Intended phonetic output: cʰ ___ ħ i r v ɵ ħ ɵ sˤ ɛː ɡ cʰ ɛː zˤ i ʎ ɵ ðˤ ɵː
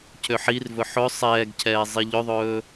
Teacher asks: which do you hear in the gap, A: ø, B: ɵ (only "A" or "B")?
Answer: A